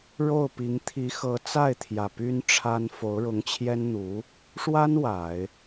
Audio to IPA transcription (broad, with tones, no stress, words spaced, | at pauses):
ɻo˥˩ʊ̯pi˧˥ŋ t̪ʰi˧˥xɤ˧˥ t͡sa˥˩ɪ̯t̪ʰjä˨˩ py˥nʈ͡ʂʰa˥n fo˧˥ʊ̯ɻʊ˧˥ŋt͡ɕʰjɛ˥nn̪u˧˥ | ʂwa˥n wa˨˩˦ɪ̯